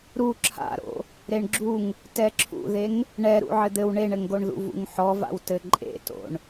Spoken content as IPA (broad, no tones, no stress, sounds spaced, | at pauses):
ɾ u ǁʰ a̰ ɾ o̰ | ɾ e ɳ ɡ͡ǁ u ŋ | t ɛ ǁʰ ṵ ð e ŋ | ɳ ɛ ɾ ṵ ʕ ɘ d̪ ɘ w ɳ e ɳ ɘ ŋ ɡ o ɳ ð ṵ v ṵ ŋ ħ ɔ v a̰ w t ɘ ǃʼ ḛ t o̰ ɳ